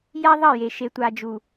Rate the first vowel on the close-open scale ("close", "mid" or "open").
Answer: open